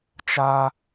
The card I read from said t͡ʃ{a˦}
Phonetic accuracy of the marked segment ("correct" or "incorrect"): incorrect